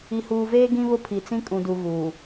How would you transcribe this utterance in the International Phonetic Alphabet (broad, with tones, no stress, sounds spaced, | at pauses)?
i˨ h uː˨ v eː˦ ɡ ĩ˦ β ʊ˦ pʰ i˨ t͡s ĩ˦ kʼ ũ˨ d u˨ ɣ uː˨